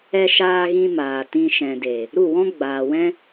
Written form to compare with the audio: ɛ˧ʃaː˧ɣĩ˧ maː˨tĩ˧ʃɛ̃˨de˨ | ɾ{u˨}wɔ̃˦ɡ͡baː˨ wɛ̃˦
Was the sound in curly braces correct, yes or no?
no